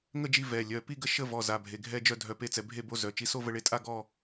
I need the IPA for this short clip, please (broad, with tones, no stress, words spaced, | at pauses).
ŋə˥˧d͡ʒi˧ vɛ˩˧˩lʲœ˩˧˩ pi˥˧ɡə˥˧ ʃə˥˧ vɔ˩˧˩ za˩˧˩bʱe˩˧˩ ɡʱɛ˥˧d͡ʒœ˥˧ dʱœ˧pe˥˧t͡sɛ˧ bʱe˥˧bo˥˧ zœ˩˧˩t͡ʃi˧ so˥˧və˧ɭe˧tʼa˥˧ ɡɔ˥˧